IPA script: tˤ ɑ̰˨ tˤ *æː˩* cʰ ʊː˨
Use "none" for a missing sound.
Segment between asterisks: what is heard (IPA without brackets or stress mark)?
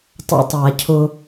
æː˩